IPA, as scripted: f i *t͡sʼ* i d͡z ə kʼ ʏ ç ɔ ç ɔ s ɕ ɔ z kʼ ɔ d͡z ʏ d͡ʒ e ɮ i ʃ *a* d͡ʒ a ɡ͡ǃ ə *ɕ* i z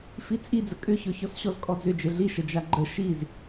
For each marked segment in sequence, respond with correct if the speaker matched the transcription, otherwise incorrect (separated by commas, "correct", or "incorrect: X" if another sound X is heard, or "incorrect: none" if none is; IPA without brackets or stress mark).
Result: correct, incorrect: ə, incorrect: ʃ